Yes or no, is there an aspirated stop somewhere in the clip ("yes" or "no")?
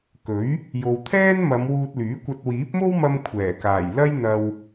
yes